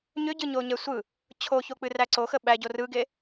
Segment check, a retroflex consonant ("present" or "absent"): absent